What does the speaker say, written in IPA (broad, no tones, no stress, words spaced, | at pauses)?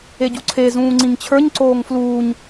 eɟuǀʰe zũːŋ͡ǀĩŋt͡ɕʰə˞ɲ ǀoːŋfluːɲ